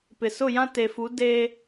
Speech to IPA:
p ɪ˨ s ʊ˦˨ j ã˦ t e˨ f u˨˦ d eː˦

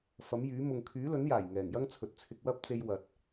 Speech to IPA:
f ɐ˨˥ m j yː˨˥ m ʊ˨ ŋ kʰ yː˨˥ l ɵ˨˥ n j aː˨˩ j ŋ ɛː˨˩ ŋ j ɐ˥ ŋ t͡sʰ ɵ˨ t̚ t͡sʰ ɪ˧ k̚ w ɐ˥ p̚ t͡s e˧ j w ɐ˨ t̚

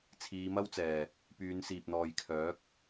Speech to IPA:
t͡sʰ iː˨˧ m ɐ˥ w t͡s ɛː˨˩ | p yː˨˧ n s iː˨ p̚ n̪ ɔː˨ j kʰ œː˨˥ k̚

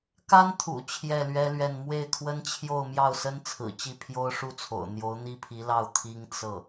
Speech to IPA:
k a˥ n t̪ʰ ṵ˨˩ t͡ɕʰ j ɛ˥˩ l ɥ ɛ˥ l ɥ ɛ˥˧ n m w e˥˩ ɪ̯ kʰ w ə˥ n t͡ɕʰ j o˥˧ ʊ̯ m j ɑ˥˩ ʊ̯ s ə˥ n t͡sʰ ɹ̩˨˩ t͡ɕ i˥˩ pʰ j o˥ ʊ̯ ʂ u˥ t͡sʰ o̰˨˩ ʊ̯ n̪ j o˧˥ ʊ̯ n̪ i˥ pʰ i˧˥ l ɑ˥˩ ʊ̯ t̪ʰ i˥ ŋ t͡s ɤ˥˩

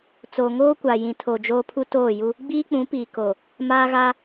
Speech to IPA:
t͡s o˨ ŋ oː˦ kʷ aː˨ j ĩ˨ tʰ o˨ d͡ʒ oː˦ pʰ u˦ t oː˦˨ j u˦ | ɡ͡b iː˦ k͡p ũ˨˦ p iː˨ k oː˨ | m aː˦ ɣ aː˦

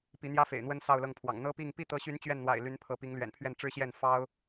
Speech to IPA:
p i˧˥ n̪ j ä˥ f ḛ˨˩ ɪ̯ n̪ w ə˥ n s ɑ˥˧ ʊ̯ l ɤ˥˩ ŋ pʰ w ɑ̰˨˩ ŋ n̪ ɤ˥ p i˥˧ ŋ p i˥˩ t̪ ɤ˧˥ ɕ y˧˥ n t͡ɕ ɥ ɛ˥˩ n n̪ w a̰˨˩ ɪ̯ l y˧˥ n pʰ ɤ˧˥ p i˧˥ ŋ l ɥ ɛ̰˨˩ n pʰ ɥ ɛ˥˩ n ʈ͡ʂ ɻ̩˥ ɕ j ɛ˥˩ n f ɑ˥ ʊ̯

